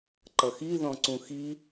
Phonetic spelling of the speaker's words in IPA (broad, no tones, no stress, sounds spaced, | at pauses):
ǃ ʌ x i ð ɔ̃ ǀ ũ x i